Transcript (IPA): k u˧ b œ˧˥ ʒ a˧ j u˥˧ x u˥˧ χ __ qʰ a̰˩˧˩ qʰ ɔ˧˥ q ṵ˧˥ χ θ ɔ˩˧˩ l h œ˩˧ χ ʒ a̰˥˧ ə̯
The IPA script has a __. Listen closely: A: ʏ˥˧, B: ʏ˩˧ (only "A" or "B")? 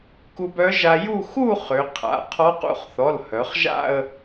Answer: B